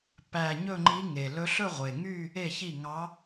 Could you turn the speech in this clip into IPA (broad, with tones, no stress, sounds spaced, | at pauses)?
p æ˨˩ ɲ ɵ˥˧ ŋ͡ǃ i˧˥ ŋ e˨˩ l ɵ˧˥ ɬ ɵ˥˧ ʁʷ e˨˩ ŋ y˥˧ | e˥˩ ç i˥˩ ŋ ɑ˧˥